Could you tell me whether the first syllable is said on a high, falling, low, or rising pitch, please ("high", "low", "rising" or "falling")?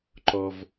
high